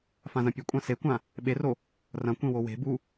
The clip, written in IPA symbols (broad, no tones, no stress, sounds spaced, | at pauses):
f ã z ɐ̃ pʲ ɵ kʷʼ ã s e kʷ ã | ɓ e r o | r ɐ̃ kʷ ẽ w o w e̤ b u